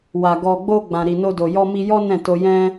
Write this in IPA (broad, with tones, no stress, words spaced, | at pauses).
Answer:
wa˨ ɡɔ˨ɡ͡bo˧ ɡ͡bã˨ɾi˨no˧do˨ jɔ˧mi˧jɔ˦ nɛ̃˦˨to˧jɛ̃˦